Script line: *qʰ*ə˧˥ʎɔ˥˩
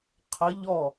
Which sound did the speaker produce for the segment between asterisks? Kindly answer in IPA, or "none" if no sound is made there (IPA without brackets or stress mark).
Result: qʰ